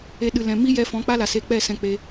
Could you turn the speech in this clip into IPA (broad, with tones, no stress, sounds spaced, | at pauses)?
e˧ ɗ ɨ˨ l ɛ̃˨ m i˦ j ɛ˧ f ɔ̃˨˦ k͡p a˦ l a˨ s e˧ k͡p ɛ˦˨ s ɛ̃˧ k͡p e˧